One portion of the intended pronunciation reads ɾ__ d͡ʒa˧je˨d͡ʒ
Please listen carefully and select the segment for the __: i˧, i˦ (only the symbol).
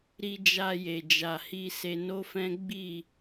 i˧